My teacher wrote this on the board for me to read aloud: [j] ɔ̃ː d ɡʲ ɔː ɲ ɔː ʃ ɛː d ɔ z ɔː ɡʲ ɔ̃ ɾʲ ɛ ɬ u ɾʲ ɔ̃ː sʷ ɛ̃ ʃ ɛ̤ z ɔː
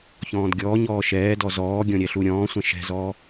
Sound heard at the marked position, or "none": ç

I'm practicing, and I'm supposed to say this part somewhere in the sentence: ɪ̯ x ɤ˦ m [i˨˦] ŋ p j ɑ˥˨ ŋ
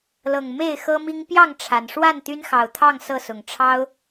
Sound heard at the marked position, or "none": i˦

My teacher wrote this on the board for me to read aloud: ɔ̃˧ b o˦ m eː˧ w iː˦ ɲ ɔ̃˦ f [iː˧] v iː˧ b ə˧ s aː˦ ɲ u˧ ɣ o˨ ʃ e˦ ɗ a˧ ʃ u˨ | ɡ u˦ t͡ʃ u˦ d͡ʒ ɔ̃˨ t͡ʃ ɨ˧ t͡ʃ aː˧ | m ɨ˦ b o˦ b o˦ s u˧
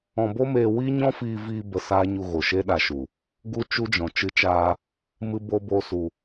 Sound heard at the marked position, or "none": iː˧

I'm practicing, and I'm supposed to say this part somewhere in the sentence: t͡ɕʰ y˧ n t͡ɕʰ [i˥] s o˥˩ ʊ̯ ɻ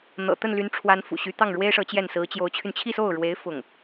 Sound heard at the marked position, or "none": i˥˧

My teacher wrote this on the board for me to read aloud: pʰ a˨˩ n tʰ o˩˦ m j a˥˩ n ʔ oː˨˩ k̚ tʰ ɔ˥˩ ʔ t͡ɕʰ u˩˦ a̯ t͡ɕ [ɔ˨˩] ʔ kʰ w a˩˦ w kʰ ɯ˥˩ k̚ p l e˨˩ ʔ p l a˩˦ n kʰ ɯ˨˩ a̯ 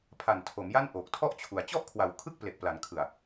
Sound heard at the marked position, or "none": ɔ˥˩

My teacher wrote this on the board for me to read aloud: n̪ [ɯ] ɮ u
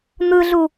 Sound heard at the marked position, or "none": ɯ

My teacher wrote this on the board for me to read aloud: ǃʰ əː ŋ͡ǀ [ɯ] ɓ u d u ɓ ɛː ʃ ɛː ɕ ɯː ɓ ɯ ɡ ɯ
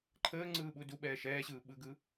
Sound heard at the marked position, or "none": ɯː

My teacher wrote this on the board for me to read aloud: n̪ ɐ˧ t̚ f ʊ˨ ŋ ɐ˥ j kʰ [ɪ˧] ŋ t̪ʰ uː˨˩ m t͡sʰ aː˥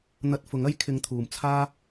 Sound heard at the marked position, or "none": ɪ˧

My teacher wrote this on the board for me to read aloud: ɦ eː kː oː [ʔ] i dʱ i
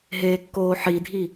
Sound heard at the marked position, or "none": ħ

